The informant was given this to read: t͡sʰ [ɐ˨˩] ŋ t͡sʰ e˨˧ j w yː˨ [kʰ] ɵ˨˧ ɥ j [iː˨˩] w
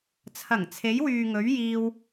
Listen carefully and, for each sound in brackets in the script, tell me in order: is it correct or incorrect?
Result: correct, incorrect, incorrect

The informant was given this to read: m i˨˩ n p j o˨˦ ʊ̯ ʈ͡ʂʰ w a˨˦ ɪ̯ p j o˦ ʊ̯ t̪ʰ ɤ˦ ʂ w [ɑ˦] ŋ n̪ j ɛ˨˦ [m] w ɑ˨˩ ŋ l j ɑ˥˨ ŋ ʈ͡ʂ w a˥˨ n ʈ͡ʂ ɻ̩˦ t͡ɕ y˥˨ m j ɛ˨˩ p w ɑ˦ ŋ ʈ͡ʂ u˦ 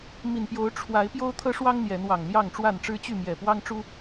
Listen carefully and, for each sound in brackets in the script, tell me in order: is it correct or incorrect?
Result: correct, incorrect

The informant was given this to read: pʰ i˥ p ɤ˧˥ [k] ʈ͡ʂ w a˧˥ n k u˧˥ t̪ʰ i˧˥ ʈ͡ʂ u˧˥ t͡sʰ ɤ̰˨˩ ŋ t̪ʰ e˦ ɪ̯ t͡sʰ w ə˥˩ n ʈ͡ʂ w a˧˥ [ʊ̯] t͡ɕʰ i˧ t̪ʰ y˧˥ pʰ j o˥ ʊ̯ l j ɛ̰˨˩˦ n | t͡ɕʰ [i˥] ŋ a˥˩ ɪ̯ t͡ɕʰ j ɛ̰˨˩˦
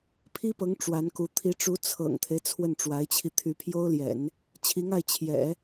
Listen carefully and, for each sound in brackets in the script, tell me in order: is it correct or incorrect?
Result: incorrect, incorrect, incorrect

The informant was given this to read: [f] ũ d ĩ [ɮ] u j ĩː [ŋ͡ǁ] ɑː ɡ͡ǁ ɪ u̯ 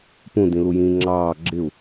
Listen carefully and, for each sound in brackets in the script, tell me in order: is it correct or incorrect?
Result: incorrect, incorrect, correct

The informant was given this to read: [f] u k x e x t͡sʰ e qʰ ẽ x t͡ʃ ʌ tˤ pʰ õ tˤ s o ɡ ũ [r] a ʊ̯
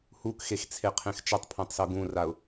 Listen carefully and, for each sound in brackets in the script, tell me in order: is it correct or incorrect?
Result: incorrect, correct

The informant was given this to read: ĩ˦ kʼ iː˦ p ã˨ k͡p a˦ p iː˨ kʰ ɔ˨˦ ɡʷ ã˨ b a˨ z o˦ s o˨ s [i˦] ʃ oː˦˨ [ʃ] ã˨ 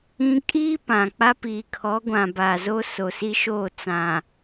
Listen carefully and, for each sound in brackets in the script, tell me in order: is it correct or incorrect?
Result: correct, incorrect

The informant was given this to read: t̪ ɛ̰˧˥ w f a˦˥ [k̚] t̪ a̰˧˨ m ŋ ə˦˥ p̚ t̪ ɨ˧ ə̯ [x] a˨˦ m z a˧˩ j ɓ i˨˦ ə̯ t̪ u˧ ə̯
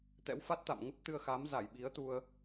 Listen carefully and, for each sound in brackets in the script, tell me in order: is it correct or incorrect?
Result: incorrect, correct

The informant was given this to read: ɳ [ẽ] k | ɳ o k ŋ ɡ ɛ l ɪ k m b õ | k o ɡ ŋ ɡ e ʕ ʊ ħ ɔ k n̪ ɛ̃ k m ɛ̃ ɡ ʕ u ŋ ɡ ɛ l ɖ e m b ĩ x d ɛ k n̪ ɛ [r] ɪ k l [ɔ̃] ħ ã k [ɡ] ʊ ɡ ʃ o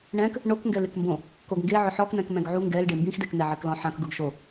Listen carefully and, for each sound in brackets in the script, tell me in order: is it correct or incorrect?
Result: incorrect, incorrect, correct, correct

